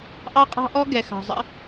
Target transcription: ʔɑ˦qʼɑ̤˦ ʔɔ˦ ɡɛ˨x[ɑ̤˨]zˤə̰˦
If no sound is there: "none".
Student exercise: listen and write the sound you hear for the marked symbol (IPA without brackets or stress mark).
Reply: ɑ̤˨